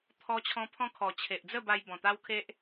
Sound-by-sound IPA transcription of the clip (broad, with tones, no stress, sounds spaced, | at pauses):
t̪ʰ ɔ˦ t͡ɕʰ ɔ̃˦ pʰ ɔ̃˦ kʰ ɔ˨˩ t͡ɕʰ e˨ ʔ d͡z ə˥˧ b a˧ j b ɔ̃˨˩ t̪ a˦ w kʰ e˦ ʔ